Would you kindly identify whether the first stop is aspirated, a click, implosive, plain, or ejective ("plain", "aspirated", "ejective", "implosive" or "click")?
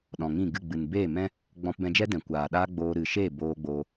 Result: implosive